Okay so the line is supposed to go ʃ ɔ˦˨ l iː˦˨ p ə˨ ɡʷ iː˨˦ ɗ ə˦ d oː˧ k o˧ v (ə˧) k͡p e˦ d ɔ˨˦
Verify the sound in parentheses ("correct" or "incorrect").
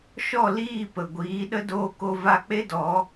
incorrect